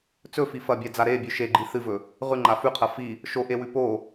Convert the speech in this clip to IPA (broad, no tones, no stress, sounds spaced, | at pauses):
t͡s ɵ f i f ɐ bʲ a d͡z a ɾ e bʲ ʉ ʃ e ɡ͡ǃ i θ ɨ v ɵ | ʁ ʉ ŋ͡ǃ a f ʉ qʰ ɐ f i | ʃ o ʔ e w ʉ p o